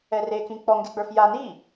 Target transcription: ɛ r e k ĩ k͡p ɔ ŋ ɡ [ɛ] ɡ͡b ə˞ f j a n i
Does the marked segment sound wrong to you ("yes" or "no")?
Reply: yes